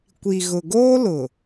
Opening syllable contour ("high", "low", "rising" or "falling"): low